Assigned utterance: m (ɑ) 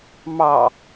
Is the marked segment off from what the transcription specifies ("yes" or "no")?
no